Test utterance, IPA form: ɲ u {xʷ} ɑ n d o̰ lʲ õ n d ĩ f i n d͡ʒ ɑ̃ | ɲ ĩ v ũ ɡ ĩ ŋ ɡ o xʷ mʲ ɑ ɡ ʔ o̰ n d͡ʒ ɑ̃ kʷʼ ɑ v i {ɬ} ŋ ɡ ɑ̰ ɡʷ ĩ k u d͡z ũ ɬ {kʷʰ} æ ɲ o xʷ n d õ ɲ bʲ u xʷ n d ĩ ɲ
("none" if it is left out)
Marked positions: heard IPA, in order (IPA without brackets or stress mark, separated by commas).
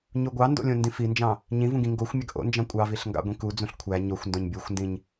ɡʷ, ɬ, kʷʰ